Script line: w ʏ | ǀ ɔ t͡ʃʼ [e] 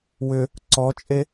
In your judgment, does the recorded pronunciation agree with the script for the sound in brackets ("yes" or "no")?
yes